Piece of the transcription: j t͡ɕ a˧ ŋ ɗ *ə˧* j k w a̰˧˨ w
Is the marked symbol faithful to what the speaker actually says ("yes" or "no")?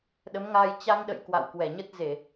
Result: no